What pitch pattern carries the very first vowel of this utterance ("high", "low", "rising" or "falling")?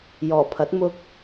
low